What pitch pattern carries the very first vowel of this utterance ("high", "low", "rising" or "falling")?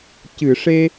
low